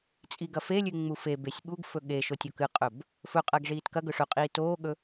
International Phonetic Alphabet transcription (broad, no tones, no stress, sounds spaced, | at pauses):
t͡sʼ i ɡ ɐ f e lʲ ʉ ŋ͡m u f e b e sʲ ɓ u ɡ f ɵ ɠ e ʃ o tʲ o k ɨ qʼ ɵ b | f ɵ qʼ ɐː ɡ ʐ iː t k ɐ ɡ ɵ ʂ ɵ qʼ iː t oː ɠ ɵ